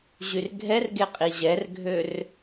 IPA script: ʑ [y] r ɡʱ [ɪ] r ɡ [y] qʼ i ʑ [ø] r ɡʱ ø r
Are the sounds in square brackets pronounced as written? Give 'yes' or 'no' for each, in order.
yes, no, no, no

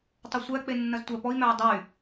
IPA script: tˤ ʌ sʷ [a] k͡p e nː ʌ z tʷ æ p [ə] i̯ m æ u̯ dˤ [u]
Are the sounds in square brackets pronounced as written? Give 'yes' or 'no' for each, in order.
no, no, no

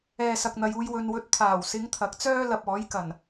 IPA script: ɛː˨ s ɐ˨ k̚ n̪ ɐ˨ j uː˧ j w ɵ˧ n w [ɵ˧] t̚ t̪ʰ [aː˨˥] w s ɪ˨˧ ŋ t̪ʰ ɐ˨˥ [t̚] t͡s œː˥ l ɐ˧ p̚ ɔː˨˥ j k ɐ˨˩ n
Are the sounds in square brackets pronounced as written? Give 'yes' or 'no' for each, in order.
yes, no, no

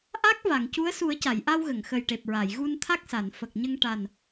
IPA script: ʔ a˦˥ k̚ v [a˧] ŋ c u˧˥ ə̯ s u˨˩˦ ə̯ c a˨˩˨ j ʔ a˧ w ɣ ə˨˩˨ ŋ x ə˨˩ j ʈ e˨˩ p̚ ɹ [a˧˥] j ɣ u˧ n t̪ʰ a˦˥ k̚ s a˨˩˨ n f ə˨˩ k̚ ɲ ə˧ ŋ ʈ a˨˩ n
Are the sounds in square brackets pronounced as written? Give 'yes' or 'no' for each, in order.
no, no

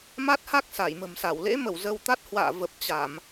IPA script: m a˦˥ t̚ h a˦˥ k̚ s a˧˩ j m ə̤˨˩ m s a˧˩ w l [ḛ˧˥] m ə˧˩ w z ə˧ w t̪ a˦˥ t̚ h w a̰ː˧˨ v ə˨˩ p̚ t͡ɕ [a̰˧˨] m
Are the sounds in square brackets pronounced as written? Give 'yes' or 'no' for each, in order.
yes, no

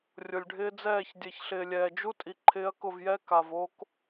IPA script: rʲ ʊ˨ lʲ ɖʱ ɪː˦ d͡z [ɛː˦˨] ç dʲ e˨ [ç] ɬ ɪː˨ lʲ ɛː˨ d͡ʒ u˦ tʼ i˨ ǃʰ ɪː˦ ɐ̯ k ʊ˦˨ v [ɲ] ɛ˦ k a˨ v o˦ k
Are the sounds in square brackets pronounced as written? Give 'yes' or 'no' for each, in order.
yes, yes, no

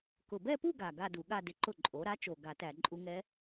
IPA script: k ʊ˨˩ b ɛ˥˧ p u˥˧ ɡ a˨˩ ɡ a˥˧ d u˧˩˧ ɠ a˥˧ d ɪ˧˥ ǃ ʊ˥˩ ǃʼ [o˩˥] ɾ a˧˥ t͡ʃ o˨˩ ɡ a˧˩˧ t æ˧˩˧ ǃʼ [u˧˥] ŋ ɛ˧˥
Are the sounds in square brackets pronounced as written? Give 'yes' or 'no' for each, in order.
yes, yes

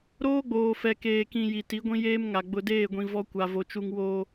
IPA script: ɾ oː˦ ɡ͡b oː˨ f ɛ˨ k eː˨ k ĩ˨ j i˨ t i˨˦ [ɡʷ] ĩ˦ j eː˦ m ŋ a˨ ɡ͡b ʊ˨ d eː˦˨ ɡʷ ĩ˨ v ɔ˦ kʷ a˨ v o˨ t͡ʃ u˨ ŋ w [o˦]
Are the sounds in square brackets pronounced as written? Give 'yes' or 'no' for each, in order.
yes, no

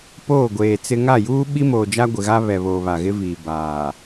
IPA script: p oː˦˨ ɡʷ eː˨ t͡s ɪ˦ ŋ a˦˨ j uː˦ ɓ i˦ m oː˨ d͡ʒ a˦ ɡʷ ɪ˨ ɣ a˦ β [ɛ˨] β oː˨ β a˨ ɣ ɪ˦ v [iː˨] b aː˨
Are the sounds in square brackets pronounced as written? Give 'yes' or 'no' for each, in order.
yes, yes

